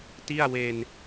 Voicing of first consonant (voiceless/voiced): voiceless